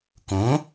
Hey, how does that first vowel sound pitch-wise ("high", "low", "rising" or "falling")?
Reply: rising